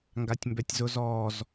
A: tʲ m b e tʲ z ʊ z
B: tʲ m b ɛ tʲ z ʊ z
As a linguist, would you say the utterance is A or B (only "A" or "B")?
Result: B